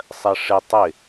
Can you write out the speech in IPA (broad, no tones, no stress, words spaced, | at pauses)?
sˤɜʂɪ tˤɪ